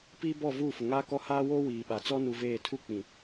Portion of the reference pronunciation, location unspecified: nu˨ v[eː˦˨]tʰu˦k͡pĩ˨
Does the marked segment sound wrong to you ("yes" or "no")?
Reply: no